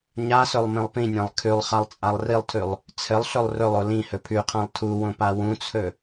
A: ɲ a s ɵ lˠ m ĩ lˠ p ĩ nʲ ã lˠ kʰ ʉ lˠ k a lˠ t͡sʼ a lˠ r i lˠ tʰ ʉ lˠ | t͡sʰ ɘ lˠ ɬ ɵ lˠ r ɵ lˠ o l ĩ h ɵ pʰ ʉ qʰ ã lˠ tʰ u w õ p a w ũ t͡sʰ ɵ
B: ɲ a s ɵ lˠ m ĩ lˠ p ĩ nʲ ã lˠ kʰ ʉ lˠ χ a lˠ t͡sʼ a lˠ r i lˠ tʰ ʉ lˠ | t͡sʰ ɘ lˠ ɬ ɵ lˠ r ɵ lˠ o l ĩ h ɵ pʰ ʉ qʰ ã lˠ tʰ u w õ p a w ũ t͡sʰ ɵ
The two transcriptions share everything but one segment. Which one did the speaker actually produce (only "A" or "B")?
B